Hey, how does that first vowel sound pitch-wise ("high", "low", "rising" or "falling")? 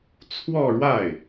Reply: falling